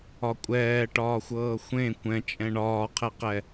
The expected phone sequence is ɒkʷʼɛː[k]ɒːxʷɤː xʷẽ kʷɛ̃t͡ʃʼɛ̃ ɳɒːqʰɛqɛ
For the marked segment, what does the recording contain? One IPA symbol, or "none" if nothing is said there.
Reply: ʈ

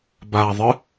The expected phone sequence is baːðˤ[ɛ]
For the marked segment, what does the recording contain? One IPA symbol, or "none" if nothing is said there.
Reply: ɨ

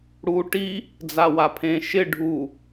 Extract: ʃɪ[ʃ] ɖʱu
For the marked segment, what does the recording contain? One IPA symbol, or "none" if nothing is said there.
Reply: none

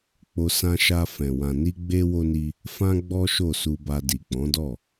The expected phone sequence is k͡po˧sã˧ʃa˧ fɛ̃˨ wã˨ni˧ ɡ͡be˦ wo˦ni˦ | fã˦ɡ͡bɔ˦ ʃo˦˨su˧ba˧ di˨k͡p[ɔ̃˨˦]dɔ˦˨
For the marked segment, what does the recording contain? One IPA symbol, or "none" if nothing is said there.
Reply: ɔ̃˨˦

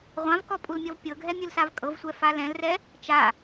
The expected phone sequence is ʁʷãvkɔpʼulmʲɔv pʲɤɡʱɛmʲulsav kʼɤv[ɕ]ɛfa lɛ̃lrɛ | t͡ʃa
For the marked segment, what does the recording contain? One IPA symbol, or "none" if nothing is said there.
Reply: sʷ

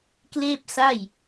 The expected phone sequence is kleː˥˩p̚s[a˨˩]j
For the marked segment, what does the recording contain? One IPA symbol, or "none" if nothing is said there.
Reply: a˥˩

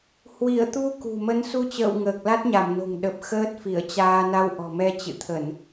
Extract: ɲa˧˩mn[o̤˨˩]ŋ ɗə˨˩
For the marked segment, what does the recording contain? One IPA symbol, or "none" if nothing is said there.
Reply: o̤˨˩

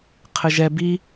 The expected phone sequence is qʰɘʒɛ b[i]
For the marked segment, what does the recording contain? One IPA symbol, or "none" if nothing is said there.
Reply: i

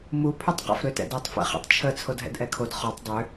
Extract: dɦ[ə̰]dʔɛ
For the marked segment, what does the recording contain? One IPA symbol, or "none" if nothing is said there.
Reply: ɛ̰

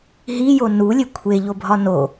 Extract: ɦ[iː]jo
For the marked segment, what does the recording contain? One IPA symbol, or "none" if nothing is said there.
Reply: i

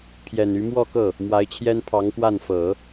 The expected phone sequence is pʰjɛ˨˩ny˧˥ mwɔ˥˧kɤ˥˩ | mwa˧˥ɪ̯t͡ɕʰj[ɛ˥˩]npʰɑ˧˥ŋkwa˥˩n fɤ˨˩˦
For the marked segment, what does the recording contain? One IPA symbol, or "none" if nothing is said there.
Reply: ɛ˥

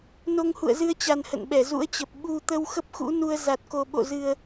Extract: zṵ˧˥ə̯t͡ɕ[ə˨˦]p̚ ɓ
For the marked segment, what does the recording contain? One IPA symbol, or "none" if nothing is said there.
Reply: ə˨˩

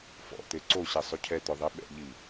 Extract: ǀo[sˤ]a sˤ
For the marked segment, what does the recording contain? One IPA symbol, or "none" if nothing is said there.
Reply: ɕ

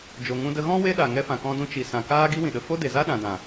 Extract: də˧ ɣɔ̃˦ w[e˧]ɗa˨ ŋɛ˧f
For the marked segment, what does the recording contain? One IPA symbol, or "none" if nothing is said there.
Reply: e˦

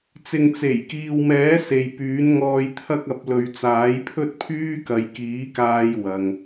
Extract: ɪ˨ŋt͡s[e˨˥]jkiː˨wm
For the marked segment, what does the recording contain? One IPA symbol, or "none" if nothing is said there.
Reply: e˨˩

